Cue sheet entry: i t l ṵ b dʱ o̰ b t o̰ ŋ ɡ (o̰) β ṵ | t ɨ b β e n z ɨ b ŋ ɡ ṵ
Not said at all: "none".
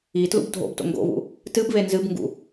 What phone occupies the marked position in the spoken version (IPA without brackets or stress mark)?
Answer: o̰